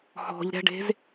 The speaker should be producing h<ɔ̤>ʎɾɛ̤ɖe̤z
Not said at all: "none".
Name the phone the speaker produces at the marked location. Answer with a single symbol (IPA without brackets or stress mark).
ɔ̤